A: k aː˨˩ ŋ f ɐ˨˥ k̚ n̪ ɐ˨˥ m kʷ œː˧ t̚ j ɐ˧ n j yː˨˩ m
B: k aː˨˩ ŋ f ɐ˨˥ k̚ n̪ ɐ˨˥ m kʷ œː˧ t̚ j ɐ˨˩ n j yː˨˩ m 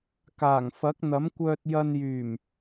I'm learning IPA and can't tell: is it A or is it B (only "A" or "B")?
A